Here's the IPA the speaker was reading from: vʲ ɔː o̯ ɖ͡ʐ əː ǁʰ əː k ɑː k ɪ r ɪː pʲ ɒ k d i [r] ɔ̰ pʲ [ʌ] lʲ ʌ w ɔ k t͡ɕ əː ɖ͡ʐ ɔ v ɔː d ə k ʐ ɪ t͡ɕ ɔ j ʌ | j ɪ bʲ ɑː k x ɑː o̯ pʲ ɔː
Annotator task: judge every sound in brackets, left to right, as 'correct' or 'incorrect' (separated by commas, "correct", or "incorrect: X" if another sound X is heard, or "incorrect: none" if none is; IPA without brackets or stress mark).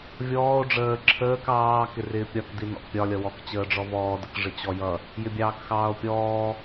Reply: incorrect: n, incorrect: ɒ